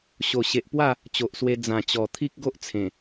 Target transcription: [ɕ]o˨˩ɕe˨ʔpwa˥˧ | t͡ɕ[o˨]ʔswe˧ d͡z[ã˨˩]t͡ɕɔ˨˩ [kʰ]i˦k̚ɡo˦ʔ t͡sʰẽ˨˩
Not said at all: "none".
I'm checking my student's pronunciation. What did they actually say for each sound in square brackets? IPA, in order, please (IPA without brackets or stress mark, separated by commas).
ɕ, o˨, ã˨˩, t̪ʰ